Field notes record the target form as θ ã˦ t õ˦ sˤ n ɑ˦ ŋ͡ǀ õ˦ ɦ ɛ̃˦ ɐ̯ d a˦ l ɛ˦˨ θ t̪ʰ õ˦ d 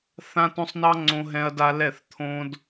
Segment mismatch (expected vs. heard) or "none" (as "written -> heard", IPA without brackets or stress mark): none